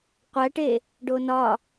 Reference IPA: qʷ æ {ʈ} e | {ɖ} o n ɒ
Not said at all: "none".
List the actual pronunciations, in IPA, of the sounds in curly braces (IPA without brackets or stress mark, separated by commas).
ʈ, ɖ